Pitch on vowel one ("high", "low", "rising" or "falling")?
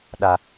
high